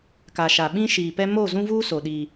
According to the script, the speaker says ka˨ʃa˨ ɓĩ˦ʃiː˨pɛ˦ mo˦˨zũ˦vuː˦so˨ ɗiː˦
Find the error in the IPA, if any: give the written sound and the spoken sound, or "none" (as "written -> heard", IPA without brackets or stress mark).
none